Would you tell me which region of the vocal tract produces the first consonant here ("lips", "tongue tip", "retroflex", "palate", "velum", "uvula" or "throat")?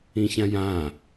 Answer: palate